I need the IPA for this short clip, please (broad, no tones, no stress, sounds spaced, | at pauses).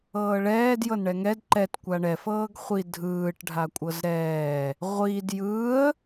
ɤː ɭ ɛː d j ɤ n ɳ ɛ ŋ ɛ d ǃ ɛ t kʷ a ɳ ɛ f ɤː ɡ χʷ i dʱ ɯː ʈ ɖʱ a kʷʼ ɤ z ɾ ɛː | ʁʷ iː d j ɯː ə̯